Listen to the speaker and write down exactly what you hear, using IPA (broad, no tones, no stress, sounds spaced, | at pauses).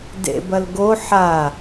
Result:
d ḛ b ɐ l ɡ o ħ a